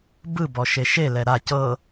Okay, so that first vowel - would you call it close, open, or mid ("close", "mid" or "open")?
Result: close